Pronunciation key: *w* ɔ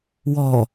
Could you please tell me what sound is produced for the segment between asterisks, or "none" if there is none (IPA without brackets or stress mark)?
w